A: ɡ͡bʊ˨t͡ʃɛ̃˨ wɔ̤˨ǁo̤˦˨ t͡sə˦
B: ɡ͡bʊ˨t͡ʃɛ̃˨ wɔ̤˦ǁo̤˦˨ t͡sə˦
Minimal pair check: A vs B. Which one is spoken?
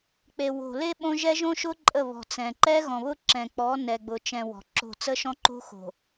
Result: A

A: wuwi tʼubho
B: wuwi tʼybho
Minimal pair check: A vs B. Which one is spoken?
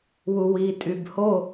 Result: B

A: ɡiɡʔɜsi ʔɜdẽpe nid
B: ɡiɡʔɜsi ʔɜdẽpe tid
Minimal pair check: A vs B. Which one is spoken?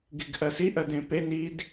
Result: A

